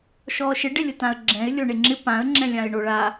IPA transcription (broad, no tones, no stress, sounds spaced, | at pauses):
ʃ ɔː ʃ ɪ ɖ ɪ lʲ ʊ t ã ə̯ ɡ͡ǁ ɛ̃ ɪ̯ lʲ o ɳ e ŋ͡ǁ ɪ p ã ə̯ ŋ͡ǁ ɛ̃ lʲ ã ɪ̯ ɳ o ɭ a